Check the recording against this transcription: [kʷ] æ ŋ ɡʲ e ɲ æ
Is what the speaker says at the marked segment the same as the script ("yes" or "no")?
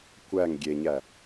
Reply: yes